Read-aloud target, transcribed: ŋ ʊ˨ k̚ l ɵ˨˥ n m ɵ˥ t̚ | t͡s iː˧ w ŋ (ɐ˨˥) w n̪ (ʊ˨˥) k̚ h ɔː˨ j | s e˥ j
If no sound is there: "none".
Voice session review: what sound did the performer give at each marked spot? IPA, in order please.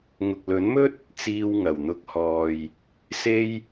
ɐ˨˩, ʊ˨˥

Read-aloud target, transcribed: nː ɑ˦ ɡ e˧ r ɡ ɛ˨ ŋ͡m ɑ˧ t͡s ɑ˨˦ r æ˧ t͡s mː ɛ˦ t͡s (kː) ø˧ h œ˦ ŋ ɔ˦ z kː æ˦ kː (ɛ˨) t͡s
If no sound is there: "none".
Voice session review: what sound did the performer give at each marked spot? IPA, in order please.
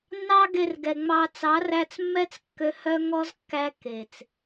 kː, e˨

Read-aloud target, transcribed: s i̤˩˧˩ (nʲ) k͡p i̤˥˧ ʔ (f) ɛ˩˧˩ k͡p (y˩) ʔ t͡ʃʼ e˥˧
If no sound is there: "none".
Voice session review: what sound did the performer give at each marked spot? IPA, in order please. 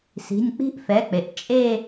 nʲ, f, e˩

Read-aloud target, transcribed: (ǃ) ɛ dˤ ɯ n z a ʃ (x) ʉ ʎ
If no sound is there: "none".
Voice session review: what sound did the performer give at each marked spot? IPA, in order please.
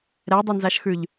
ɾ, x

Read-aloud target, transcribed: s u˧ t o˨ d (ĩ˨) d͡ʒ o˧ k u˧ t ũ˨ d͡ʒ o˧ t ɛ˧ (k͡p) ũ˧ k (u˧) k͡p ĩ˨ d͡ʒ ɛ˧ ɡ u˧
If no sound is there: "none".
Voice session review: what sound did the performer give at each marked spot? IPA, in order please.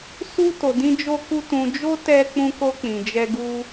ĩ˧, k͡p, o˧

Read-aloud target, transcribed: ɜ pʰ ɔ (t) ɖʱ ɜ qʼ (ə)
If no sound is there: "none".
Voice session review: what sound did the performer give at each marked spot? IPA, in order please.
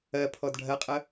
d, ə

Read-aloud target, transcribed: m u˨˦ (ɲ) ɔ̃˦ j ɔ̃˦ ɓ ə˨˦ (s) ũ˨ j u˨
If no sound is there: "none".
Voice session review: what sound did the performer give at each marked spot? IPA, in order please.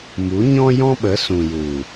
ɲ, s

